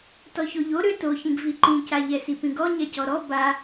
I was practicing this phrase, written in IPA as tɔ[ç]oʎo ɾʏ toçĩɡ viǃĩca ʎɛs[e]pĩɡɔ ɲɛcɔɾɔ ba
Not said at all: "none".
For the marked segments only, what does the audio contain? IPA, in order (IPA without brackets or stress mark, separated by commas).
ç, i